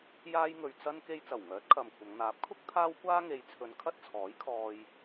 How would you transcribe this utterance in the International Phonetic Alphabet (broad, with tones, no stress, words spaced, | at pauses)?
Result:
jaː˧jŋɵ˨ɥ t͡sɐ˥n ke˧jt͡sɐ˨˩wŋœː˨˥t̚ kʰɐ˨mkʷʰɐ˨˧ŋ n̪aː˨˥p̚kʰʊ˥k̚ t̪ʰaː˥wkʷaː˥ŋe˨˧jt͡sʰɵ˨˧n kʰɐ˥t̚t͡sʰɔː˨˥jkʰɔː˧j